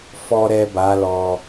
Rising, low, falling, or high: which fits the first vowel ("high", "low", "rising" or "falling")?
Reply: low